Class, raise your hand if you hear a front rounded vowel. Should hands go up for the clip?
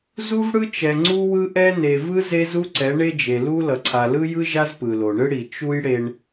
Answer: no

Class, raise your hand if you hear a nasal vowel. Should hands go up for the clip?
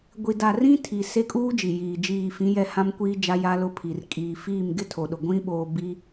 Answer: yes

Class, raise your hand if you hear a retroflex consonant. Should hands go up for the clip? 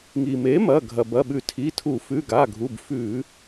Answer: no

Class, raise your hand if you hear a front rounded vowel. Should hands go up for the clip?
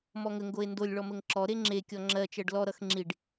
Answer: no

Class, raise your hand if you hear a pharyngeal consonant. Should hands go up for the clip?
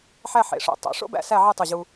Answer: yes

